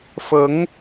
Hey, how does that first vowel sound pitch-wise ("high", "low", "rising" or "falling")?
rising